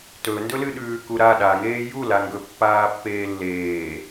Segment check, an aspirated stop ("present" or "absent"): absent